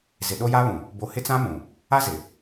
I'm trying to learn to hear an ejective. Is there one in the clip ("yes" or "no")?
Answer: no